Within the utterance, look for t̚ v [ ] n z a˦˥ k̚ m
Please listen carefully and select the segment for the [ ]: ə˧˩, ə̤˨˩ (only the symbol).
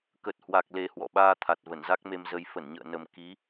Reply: ə˧˩